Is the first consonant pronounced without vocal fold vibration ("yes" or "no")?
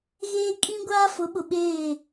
no